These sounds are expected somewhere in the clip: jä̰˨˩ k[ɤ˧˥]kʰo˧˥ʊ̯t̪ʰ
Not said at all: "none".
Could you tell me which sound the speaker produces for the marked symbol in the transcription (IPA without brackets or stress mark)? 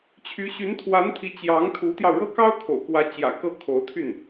ɤ˥˩